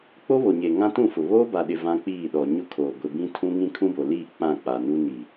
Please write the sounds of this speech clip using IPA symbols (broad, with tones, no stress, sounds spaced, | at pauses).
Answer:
k͡p o˦ β o˨ ɲ e˨ ŋ ã˦ t ũ˦˨ f ʊ˨ β oː˦ b a˨ ɗ ɪ˨ v ã˦ k͡p iː˦˨ ɗ ɔ˨ ɲ ʊ˦ kʰ oː˨ ɡʷ ɪ˨ b ĩ˦ tʰ ũ˦ ŋ ĩ˦ kʰ ũ˦ b o˨ l iː˦˨ k͡p ã˦˨ k͡p a˨ n u˦ n i˨